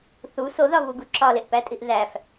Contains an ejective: yes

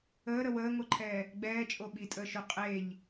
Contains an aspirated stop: yes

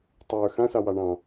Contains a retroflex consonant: yes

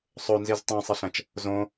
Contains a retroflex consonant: no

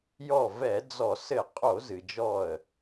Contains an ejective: yes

